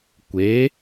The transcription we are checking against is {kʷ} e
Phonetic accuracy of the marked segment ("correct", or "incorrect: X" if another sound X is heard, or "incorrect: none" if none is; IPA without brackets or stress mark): correct